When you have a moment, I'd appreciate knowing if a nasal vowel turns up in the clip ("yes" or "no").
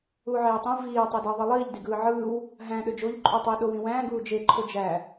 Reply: yes